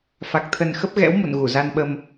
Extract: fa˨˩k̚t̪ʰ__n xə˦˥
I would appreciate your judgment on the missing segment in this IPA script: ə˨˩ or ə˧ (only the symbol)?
ə˨˩